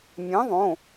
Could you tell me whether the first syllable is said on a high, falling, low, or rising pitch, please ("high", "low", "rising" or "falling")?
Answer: rising